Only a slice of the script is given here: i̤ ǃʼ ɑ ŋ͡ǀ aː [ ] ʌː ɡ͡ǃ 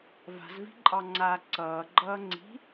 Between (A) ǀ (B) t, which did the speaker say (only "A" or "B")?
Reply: A